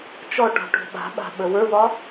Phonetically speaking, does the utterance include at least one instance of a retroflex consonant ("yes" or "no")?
yes